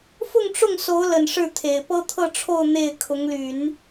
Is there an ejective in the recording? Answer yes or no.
no